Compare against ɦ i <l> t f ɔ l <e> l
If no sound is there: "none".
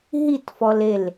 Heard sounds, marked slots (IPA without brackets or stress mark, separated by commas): none, e